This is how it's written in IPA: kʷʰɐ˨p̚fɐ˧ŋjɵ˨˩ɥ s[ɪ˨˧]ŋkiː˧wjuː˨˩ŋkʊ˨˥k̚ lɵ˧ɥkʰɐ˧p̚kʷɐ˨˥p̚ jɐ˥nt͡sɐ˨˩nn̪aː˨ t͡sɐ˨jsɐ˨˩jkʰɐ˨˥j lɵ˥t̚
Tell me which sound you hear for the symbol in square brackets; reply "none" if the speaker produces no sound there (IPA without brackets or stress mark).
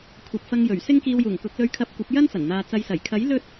ɪ˥